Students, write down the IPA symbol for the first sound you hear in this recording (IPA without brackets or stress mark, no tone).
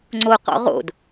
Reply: ŋ͡ǀ